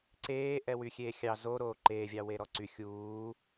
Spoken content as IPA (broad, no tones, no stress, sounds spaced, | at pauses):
ǀ eː ʔ ɛ w y xʲ eː xʲ ɑ z o ɾ oː ǃ eː vʲ ɑ w e ɾ ɔ ǀ y xʲ uː